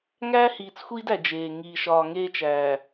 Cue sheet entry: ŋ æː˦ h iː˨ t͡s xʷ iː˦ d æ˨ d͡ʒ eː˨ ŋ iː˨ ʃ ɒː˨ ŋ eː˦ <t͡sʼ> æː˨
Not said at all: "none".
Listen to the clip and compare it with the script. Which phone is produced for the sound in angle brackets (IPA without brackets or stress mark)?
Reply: t͡ʃ